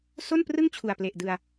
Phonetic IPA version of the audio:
s o˥˩ n p r ɯ˥˩ ŋ t͡ɕʰ u˨˩ a̯ p l e˨˩ ʔ d ɯ˧ a̯

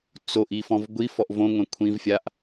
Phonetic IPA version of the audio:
t͡s o ʔ i f ɔ̃ v ɡʷ i f ɔ ʔ v õ ŋʷ ɛ̃ kʷʰ ĩ v fʲ a ʔ

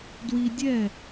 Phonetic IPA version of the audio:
d w i˧ dʲ ɛ˦˨

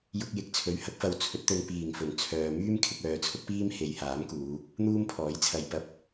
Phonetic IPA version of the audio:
j ʊ˧ k̚ j ɪ˨ k̚ t͡sʰ ɵ˨˥ ɥ h ɐ˨˥ k̚ f ɐ˧ w t͡sʰ ɵ˨˥ t̚ t̪ ɵ˧ n p iː˨˩ ŋ f ɵ˨˩ n t͡sʰ œː˨ m yː˥ m kʰ ɪ˧ k̚ œː˨˧ t͡sʰ ʊ˥ k̚ p iː˥ m h e˨˧ j h aː˨˥ m k uː˨˧ | n̪ uː˥ m pʰ ɔː˨˥ j t͡sʰ ɐ˧ j p ɐ˨ p̚

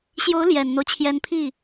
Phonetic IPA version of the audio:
ɕ j o˧˥ ʊ̯ l j ɛ˨˩ n n̪ o˦ ʊ̯ t͡ɕʰ j ɛ˧˥ n pʰ i˥˩

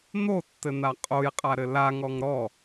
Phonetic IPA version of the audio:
n̪ o tː ɘ n̪ a qʼ o j qʼ a ɾ ɘ l a ŋ ɔ ŋ ɾ ɔ

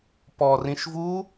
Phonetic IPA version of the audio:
p ɔ r ĩ ʃ v u

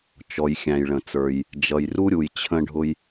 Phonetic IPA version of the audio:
t͡ʃ ɔ˩ j xʲ æ̃˩ j ɭ ə̃˩ t͡s ə˞˩ j | d͡ʒ ʌ˩ j r u˥ ɾʲ u˩ j t͡ɕʰ ə̃˧ ɖʱ ʊ˧ j

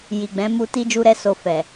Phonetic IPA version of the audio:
j i˨ ɡ͡b ɛ̃˨˦ m u˧ t i˦ d͡ʒ u˦ ɾ ɛ˦ s o˧ f ɛ˨

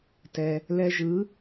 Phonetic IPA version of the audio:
t ɛ˩ | l ɛ˧ ʒ ɯ˩˥

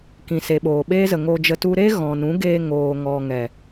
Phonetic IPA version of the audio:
k ĩ˨ s e˨ ɓ oː˨ ɓ eː˦ z ə˨ ŋ oː˧ d͡ʒ ə˧ t u˦ ɾ e˦ ɣ ɔ̃˨ n ũ˨˦ ɡ eː˧ ŋ oː˨ ŋ ɔ˨ ŋ ɛ˨

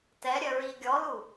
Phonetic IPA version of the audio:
t ɛ ɾʲ œ ɹ i ɡʲ ɔ l u

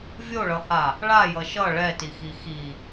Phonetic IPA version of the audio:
vʲ o ɭ ʌ h a | ɭ a j ʌ ʃ ʌ ɭ ɛ t i x i x i

